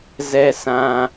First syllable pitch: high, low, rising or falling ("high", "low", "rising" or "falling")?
high